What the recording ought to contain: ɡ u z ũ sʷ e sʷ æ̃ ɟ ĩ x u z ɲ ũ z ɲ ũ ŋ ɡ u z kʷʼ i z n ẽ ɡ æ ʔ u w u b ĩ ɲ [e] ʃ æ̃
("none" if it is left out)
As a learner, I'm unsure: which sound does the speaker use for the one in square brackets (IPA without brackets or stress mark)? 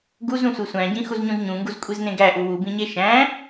e